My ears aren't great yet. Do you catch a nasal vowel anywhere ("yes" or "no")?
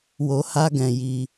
yes